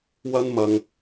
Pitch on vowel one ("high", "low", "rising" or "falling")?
high